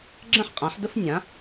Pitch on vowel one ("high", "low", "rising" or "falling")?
high